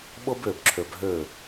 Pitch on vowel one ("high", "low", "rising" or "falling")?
high